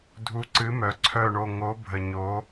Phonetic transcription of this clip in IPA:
dʱ u˨˥ ǀ ɨ˨˥ m œ˩˧ ǀʰ œ˥˨ ɳ o˥˨ ŋ o˨˥ bʱ ə˨˩ ɲ o˨˥

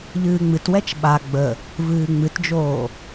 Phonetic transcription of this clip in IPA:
ʎ ɨː ŋ͡m ɨ t w ɛ t͡ʃ ɓ a ɡ͡b ə | v ɨː ŋ͡m ɨ t d͡ʒ oː

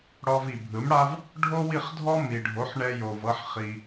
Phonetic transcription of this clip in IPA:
ɽ ɔ˧ v i˩ bʱ ɯ˩˥ m ɽ a˥ v | ɖʱ o˥ w i˥˩ χ dʱ ɔ˥ m i˩ ɖʱ o˩˥ ħ ɳ ɛ˧ j o˩ v ɤ˧ ħ χ i˩

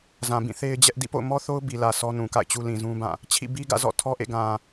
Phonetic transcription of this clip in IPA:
z ã˨ b ĩ˦˨ θ e˦ ɪ̯ d͡ʑ ɛ˦ ʔ d ḭ˦˨ p o̰˦˨ ʊ̯ m ɔ˦ θ o˦ ʊ̯ b i˨ l ä˨ sʰ ɔ˦ n ũ˨ k a̰˦˨ ɪ̯ t͡ɕ u˦ l ĩ˨ z ũ˦ b ã˦˨ | t͡ɕʰ ḭ˦˨ b i˦ ɡ ä̰˦˨ z ɔ̰˦˨ tʰ ɔ˦ ʔ ḛ˦˨ ɡ ã˨

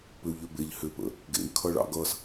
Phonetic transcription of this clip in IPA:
p ʏ u̯ ʎ ʏ b e ʎ h ʏ p ə̰ | ɡ ḛ y̯ kʰ ʌ ɭ ɑ̰ ɡ ʌ s

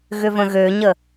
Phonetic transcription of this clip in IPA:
ɣ ʏ v ə̃ ɣ ø ɲ ə

